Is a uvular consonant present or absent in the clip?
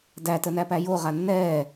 present